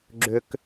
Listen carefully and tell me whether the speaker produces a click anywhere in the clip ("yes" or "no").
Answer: yes